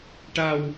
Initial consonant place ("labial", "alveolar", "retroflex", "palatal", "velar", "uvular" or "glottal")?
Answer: retroflex